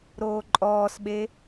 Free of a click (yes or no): no